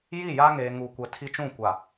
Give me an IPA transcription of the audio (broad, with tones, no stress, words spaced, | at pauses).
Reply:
ji˦˨ja˦ ŋeː˨ŋuː˨kʷɛ˨ tʰi˦t͡ʃũ˦˨kʷa˨